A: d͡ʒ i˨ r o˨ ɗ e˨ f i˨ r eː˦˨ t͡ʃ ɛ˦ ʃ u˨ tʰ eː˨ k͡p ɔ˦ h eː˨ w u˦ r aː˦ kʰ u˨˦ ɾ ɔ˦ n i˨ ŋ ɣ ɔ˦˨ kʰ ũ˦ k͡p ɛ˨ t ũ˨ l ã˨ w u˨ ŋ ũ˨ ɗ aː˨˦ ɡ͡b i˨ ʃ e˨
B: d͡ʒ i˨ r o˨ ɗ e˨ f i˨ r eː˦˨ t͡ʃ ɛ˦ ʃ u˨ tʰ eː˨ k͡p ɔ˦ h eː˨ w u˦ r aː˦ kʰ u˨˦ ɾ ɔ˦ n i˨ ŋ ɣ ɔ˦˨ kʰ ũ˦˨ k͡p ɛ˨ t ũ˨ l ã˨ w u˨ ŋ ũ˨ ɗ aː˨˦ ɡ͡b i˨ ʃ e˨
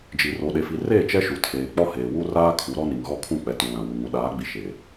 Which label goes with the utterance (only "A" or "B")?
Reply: B